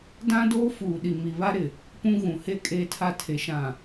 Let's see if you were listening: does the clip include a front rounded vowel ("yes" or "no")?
no